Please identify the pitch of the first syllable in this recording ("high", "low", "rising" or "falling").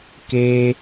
high